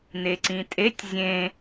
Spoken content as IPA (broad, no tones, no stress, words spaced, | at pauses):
neǀĩtʼetʲ zʲẽ